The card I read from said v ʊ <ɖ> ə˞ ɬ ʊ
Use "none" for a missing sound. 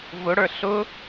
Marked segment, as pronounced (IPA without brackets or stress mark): ɽ